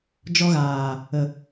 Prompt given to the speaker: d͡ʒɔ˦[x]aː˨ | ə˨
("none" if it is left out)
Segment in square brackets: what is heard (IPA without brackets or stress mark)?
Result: ɣ